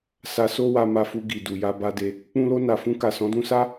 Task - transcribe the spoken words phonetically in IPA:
sa˧so˦wa˧ ma˧fu˧ ɡi˨du˨ja˧ ba˧de˧ | k͡pũ˧lo˧na˨fũ˧ ka˨sɔ̃˨˦dũ˧sa˦

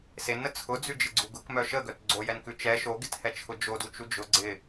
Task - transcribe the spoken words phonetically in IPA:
senə t͡sʰʊd͡zʉd͡ʒɪɡ͡ǀu ɡʊkmœ ʃəɡœt ɡ͡ǀojɛnkʉ t͡ʃɛ ʃoɡɪthɛt͡ʃʰʊ d͡ʒodut͡ʃu d͡ʒʊ ɡ͡ǀɪ

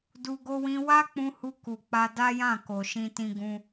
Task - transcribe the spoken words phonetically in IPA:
du˧ ɡo˧wĩ˧ wa˦ k͡pũ˧hu˧ ku˨k͡pa˧ da˦jã˦˨ ko˨ ʃĩ˧tĩ˧ ɡũ˧

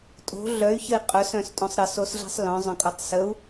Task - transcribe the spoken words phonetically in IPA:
tʼo̤ ɮœy̯çəi̯ qʼœsœ̃stʼõsˤ ɾəsosɮi̤sˤ lœ̃zˤœ̃kʼotˤ səu̯

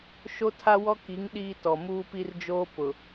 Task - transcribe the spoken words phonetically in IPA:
ʃo˦tʰa˦wɔ˦ki˨˦ŋ ɗiː˦tɔ˨ muː˦pi˦rd͡ʒoː˦ pʊ˨

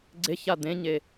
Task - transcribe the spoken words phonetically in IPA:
ɡ͡ǀeça d̪ẽɲe

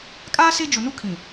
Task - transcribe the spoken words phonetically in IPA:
kʼaː˦ se˦d͡ʒʊ˨ nu˦kʰĩ˨

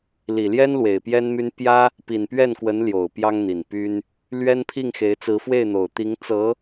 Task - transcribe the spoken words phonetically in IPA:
li˨˩ljɛ˥n lwe˨˩ɪ̯pjɛ˥nmy˥n pjä˥ | pi˨˩npɥɛ˥˩nkwə˧˥n ljo˨˩ʊ̯pjɑ˥ŋn̪i˨˩n py˥n | lɥɛ˥npʰi˥˩ŋxe˧˥ɪ̯ t͡sɹ̩˧˥fwe˥˩ɪ̯n̪o˨˩ʊ̯ t̪i˧˥ŋ t͡sɤ˧˥

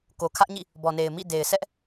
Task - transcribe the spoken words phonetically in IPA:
ko˨kʰä˦ʔɲḭ˦˨ | bɔ˨ne˨ɪ̯ mḭ˦˨de˨ɪ̯ sɛ˦ʔ

